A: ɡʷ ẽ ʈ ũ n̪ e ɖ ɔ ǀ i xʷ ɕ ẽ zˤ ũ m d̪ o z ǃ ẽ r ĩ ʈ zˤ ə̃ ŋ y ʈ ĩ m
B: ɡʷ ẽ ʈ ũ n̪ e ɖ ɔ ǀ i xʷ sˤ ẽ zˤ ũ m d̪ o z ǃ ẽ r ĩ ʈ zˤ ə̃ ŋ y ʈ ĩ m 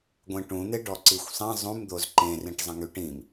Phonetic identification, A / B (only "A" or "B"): B